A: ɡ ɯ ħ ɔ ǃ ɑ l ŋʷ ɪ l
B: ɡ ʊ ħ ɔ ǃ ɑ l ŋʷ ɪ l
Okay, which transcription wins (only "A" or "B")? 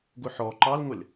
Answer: B